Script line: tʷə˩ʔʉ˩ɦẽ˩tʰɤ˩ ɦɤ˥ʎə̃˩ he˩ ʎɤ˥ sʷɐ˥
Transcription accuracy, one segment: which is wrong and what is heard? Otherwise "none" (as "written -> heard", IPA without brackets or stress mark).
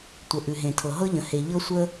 ɐ˥ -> ə˥